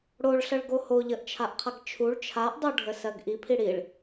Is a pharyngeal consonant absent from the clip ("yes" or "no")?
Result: yes